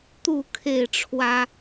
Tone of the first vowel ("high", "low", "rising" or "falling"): falling